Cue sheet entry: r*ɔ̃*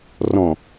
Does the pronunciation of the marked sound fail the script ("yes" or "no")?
no